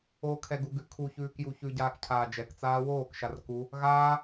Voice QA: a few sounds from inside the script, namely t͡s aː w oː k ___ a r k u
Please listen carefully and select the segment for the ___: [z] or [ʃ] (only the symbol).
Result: ʃ